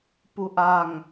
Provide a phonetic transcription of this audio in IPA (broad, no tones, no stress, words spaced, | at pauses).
puʔaŋ